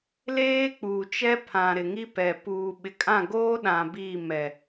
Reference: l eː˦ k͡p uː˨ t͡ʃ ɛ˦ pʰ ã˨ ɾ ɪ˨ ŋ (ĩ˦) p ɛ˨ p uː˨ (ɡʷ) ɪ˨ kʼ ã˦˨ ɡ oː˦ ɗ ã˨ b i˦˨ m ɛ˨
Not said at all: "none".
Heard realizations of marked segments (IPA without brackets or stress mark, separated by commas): i˦, ɓ